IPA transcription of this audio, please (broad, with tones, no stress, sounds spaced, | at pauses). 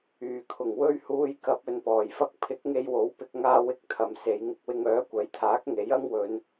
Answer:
yː˨˩ kʰ ʊ˨˩ ŋ w ɵ˧ ɥ h uː˧ j k ɐ˧ p̚ ɵ˨ n p ɔː˨˩ j f ɐ˧ k̚ pʰ ɪ˨˥ k̚ ŋ e˧ j w o˨˥ w p ɪ˧ k̚ ŋ aː˧ w ɪ˧ k̚ t̪ʰ ɐ˨ m s e˨˧ j ŋ ɪ˧ k̚ w ɪ˧ ŋ œː˨˥ kʷ ɐ˨˥ j t̪ʰ aː˨˥ k̚ ŋ e˨˥ j ɐ˥ ŋ w ɵ˨˧ n